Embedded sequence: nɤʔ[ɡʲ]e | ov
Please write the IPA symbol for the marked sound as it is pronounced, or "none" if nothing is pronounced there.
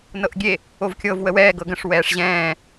ɡʲ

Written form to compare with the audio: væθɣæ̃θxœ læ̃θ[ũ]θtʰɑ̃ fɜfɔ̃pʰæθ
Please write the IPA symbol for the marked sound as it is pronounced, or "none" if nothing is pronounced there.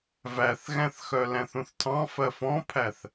ũ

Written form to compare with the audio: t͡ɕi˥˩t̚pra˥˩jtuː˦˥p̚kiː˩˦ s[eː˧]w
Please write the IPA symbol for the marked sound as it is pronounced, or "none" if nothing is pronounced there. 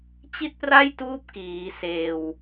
eː˧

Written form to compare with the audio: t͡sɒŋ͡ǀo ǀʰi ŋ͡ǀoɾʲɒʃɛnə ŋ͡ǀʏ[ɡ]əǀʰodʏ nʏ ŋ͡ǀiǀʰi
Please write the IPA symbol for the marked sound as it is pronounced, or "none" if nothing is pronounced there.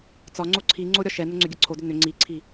ɡʲ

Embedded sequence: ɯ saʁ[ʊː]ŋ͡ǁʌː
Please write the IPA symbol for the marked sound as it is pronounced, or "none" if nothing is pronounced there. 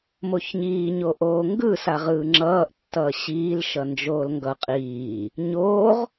ɯː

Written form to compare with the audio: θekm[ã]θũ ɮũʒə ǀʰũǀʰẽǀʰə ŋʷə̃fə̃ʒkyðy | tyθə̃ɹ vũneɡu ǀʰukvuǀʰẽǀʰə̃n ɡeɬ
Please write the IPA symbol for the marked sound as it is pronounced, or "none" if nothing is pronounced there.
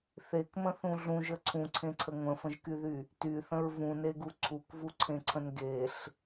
ə̃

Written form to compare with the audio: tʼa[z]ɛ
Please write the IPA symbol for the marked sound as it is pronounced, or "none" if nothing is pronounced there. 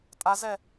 z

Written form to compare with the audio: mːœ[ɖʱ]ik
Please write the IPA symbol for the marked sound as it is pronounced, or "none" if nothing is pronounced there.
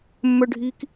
ɖʱ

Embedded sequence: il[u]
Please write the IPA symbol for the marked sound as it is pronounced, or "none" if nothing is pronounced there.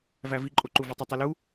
u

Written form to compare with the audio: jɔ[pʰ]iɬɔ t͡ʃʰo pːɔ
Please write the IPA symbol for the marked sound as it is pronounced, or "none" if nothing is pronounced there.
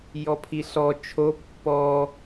pʰ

